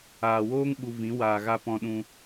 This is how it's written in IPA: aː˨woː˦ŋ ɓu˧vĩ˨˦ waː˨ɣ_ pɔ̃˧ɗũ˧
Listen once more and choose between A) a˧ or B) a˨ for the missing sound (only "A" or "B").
A